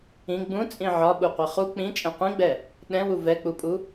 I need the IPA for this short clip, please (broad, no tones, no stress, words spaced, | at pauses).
ĩ ɡ͡bũt͡sʼĩ ʕɒɓuqʷi χu k͡pĩt͡ʃʼɛ̃ qʷĩɡ͡bɛ | ɗɛ̃wu vɛk͡pupʼu